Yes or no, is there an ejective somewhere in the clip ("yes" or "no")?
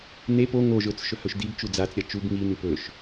no